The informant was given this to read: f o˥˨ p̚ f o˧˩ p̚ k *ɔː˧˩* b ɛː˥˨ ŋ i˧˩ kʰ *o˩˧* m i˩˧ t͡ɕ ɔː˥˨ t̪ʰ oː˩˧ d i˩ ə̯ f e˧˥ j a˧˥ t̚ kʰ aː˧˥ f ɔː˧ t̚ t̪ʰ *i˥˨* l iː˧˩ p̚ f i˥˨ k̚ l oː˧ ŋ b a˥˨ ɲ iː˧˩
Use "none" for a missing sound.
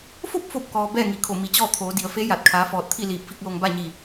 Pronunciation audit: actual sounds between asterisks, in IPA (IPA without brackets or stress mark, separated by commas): ɔː˩, o˧˩, i˥˨